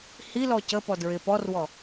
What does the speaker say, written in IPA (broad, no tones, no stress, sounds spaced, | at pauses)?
h i l ɔ c ə p ɔ d ɹ ɪ p ɔ r w ɔ